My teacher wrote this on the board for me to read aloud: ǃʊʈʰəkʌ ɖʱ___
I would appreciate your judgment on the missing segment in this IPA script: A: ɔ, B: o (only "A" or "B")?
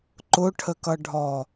A